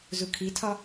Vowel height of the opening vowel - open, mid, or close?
close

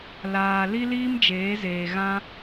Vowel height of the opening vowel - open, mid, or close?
open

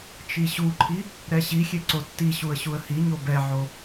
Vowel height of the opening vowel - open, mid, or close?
close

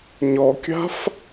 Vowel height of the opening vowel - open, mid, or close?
mid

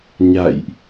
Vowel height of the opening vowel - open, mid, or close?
open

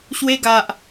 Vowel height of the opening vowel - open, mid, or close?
mid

